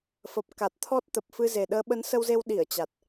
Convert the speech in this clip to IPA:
f ə˨˩ p̚ k a˨˩ t̚ t̪ʰ ɔ˦˥ t̚ t̪ ə˨˩ p̚ f ɨ˧ z e˨˩ ɗ əː˨˦ ɓ ə˨˦ n s ə˧ w z e˧ w ɗ i˧˩ ə̯ t͡ɕ a˨˩ t̚

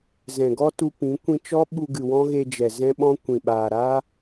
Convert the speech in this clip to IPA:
z ɛ̃˨ ɡ ɔ˦ t u˦ p ĩ˨˦ kʷ ĩ˧ t͡ʃ ɔ˦ ɓ u˧ ɡ ɨ˨ w ɔ̃˦ ɣ e˧ d͡ʒ ɛ˨ z ɛ̃˦ ɓ ɔ̃˦ kʷ ĩ˨ ɓ aː˨ ɾ aː˦

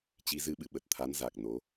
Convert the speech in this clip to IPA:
t͡ɕ i˨˦ z ɨ˧ ɓ ɨ̰˧˨ ɓ ə˨˩ t̚ t̪ʰ a˨˦ n z a˨˩ k̚ n o˨˦

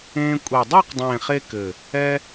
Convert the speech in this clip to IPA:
ẽː˧ kʷʼ e˨˩ dˤ a˥˧ q dˤ ẽː˨˩ χ e˧ k ɘ˨˩ | ɛ˧

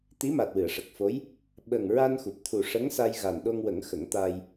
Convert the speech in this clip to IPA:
t̪ i˧˥ m a˨˩ t̚ w ɨ˨˩˨ ə̯ ʂ ə˨˩ k̚ f o˧˥ j | ɓ ə˨˩ ŋ ɹ a˧ n x u˨˩ p̚ t̪ʰ u˨˩ ʂ ə˧˥ ŋ s a˧ j ɣ a˨˩ n ɗ o˧ ŋ w ə˨˩˦ ŋ x ə˨˩˦ ŋ t̪ a˧ j

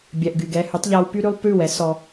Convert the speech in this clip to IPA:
bʲ ɛ˨ ʔ ɡ y˨ ɡ ɛ˧ h y˨˦ tˤ ʎ a˧ w p y˦ ɾ ʉ˦ lˠ p ʉ˦˨ w ɛ˨˦ s ɔ˧

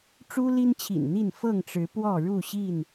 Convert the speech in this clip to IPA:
ʈ͡ʂ u˦ l i˦ n t͡ɕʰ ḭ˨˩ n n̪ i˥˨ n f ɤ˥˨ ŋ ʈ͡ʂ ɻ̩˨˦ p w ɔ˥˨ ɻ u˥˨ ɕ i˥˨ n

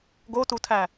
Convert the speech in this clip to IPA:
ɡ o t u tʰ æ

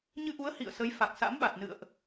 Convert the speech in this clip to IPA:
ɲ ɨ˧ ʔ u˨˦ ə̯ h ḭ˧˨ ə̯ s ə˨˦ j f a˨˩ k̚ s a̰˧˥ m ɓ a˨˩ t̚ n ɨ̰˧˨ ə̯ ʔ

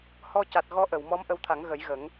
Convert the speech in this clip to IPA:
h ɔ˧ c a˨˩ t̚ ɣ ɔ˧˥ ʔ ə˨˩˨ w m ɔ˧˥ m ʔ ə˧ w t̪ʰ a˨˩˦ ŋ ɣ ə˨˩˦ j ɣ ə˨˩˦ ŋ

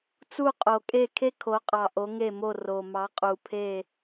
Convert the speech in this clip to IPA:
t͡s u˦˨ qʼ o˨ kʼ e˦˨ kʰ e˥ kʰ o˨˦ qʼ ɑ˨ ʔ o˨˦ ŋ e˦˨ m o˦˨ r o˨ m ɑ˨˦ qʼ u˨ pʰ e˦˨

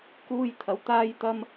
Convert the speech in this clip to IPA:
k uː˥ j t̪ʰ ɐ˧ w t̪ aː˥ j t̪ ɐ˥ m

